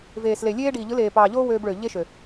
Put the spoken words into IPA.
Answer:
v eː˨ s l e˨ lʲ eː˦ ɖ iː˨ ʎ ɯ˨˦ l eː˨ p ɑː˨ ʎ oː˦ w øː˧ b ɭ ø˨ ʎ e˦ ʃ ø˨

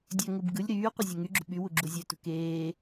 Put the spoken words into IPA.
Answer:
dʲ ø ŋ ɯ b ɡ ɯ lʲ ɾ yː qʷ ɯ zʲ e ŋ y ɡ͡ǁ ṳ ɓ y w u ɡ͡ǁ u zʲ ø t ṳ k eː

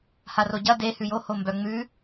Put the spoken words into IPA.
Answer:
h a r o ɟ ɐ d e h ʉ j o h o m b œ ŋ͡m ʉ

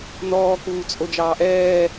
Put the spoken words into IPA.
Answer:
n ɔː k uː t͡sʼ o d͡ʒ ɑː ʔ ɛː

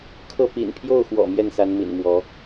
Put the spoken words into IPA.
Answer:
kʰ ɤ˥˩ p ḭ˨˩ n pʰ j o˥˩ ʊ̯ x w ɔ̰˨˩ m j ɛ˥˩ n s a˧˥ n m ḭ˨˩ n m w ɔ˧˥

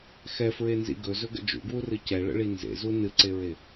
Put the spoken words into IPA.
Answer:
x ɛ f ɹ e n z ḭ ɡ ɵ z ɵ ɡ ə̰ d͡ʒ ṵ ɡ w u r ɨ c ɛ ɭ ə̰ ɭ i n z ḛ z u n ɨ ǀ e ɹ e

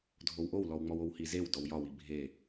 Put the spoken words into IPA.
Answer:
dʱ o w ʔ o w l ɔ w ŋ͡m ɔ w o w h i z e w d ɔ w j ɒ w i bʱ e

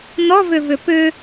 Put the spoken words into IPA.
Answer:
n ɔ v ʏ v ʏ p ʏ

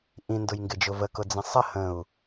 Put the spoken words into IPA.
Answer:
ʔ ĩ n d ʊ j ŋ ɡ ɪ d͡ʒ ʊ v ə k ʊ d͡z ə̃ sˤ ə h ə̃ u̯

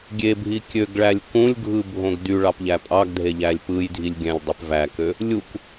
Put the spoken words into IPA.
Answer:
ɡʲ e bʱ i kʲ ø ɡ ɭ æ lʲ k ũ lʲ ɡʱ ɯ bʱ õ ɡ d y ɭ ɑ p ʎ æ pʼ ɑ ɡ dʱ e ʎ æ lʲ p ɯ j dʱ i lʲ ɡʲ æ̃ lʲ dˤ y p v æ k ø | lʲ u k

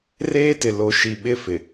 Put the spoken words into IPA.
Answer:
r eː˦ t ɪ˨ l o˨ ʃ i˨ ɓ ɪ˦ f ɪ˨

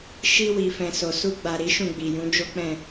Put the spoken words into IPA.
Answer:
ʃ i˧ w i˨ f ɛ̃˨ s o˨ s u˧ ɡ͡b a˨ ɾ i˨˦ ʃ ũ˦˨ ɡ͡b i˨ j ũ˨˦ d͡ʒ o˦ k͡p ɛ̃˦˨

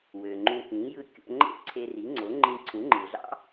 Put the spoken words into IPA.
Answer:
w ø˩ ŋ͡ǃ ũ˧ k ĩ˩˥ j ɯ˥˩ kʲ o̰˧ ŋ͡ǃ ḛ˥ ǀʰ e˧ r i˩˥ ŋ͡ǀ o˩˥ ŋ͡ǃ ĩ˧ ǀʰ ũ˩˥ ŋ͡ǃ ɯ˩ ɮ ɑ̰˥

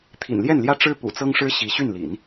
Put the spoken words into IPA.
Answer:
t̪ʰ ḭ˨˩ n l j ɛ˥˩ n l j ä˥ ʈ͡ʂ ɻ̩˥ p ṵ˨˩ t͡s ɤ˥ ŋ ʂ ɻ̩˥ ɕ i˧˥ ɕ y˥˩ n l ḭ˨˩˦ n

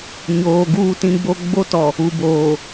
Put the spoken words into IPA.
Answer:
ɲ oː˨ ɡ uː˦ t ĩ˦ ɡ͡b o˦ ɡ͡b o˦ t ɔ˨ | u˨ b oː˨

